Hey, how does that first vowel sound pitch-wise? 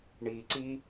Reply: low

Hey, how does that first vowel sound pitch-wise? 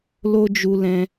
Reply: high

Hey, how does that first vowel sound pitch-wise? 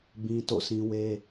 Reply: high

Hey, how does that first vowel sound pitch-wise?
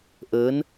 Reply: rising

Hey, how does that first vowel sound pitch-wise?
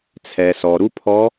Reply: low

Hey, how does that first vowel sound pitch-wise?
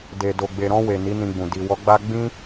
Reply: low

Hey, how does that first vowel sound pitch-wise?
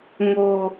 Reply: low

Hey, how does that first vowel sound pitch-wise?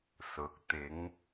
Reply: low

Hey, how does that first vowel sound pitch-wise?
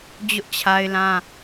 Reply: high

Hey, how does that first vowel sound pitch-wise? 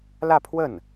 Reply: falling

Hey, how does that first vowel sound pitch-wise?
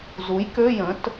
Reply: rising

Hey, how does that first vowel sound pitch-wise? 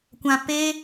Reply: low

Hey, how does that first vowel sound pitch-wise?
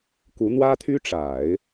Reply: rising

